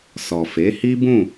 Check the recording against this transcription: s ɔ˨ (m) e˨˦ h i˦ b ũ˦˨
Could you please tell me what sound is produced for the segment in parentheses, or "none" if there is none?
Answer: f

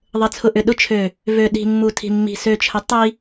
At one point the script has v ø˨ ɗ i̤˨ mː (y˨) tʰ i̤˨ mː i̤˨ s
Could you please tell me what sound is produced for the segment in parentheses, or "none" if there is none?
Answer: u˨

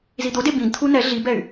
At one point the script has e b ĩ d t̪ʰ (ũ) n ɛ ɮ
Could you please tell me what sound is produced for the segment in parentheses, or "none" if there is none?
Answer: u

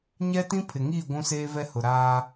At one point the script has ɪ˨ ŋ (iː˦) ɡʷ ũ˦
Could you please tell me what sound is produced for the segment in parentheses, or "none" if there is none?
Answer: iː˦˨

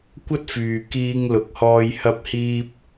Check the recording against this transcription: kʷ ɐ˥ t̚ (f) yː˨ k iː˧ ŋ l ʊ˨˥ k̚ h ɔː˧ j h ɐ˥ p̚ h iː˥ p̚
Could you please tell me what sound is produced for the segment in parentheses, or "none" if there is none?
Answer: f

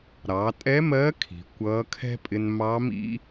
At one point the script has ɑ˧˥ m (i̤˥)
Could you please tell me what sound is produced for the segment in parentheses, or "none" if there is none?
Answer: ḭ˥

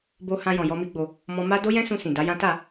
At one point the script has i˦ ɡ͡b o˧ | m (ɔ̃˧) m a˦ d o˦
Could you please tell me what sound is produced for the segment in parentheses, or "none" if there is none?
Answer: ɔ̃˧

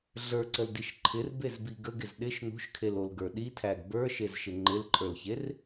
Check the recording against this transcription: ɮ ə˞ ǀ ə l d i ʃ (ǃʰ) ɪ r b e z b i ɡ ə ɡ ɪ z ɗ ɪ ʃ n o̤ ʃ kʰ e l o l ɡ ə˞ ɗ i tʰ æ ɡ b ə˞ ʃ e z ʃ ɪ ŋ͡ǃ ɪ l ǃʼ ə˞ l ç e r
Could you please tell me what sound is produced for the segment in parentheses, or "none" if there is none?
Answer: ǃʰ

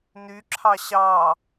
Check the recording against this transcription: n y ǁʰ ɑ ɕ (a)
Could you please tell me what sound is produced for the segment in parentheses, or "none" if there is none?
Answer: ɑ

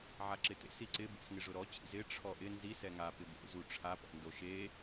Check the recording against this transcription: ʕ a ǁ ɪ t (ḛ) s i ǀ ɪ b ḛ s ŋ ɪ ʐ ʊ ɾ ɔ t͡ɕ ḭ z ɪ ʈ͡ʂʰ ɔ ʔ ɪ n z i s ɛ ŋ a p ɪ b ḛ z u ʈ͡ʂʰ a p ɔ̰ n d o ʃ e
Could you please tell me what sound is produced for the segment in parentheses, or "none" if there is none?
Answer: ḛ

